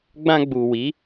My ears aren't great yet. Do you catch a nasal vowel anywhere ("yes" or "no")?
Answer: yes